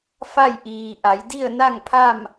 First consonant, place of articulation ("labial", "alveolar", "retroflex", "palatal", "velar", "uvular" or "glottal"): labial